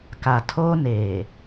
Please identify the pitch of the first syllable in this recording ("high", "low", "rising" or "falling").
low